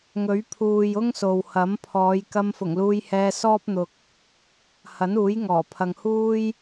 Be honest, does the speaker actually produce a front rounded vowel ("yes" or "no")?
no